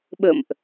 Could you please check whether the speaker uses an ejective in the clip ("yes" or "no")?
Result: no